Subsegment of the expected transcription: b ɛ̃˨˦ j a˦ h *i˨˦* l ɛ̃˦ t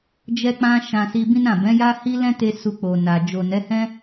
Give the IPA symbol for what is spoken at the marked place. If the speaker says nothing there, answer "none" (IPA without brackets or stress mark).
i˦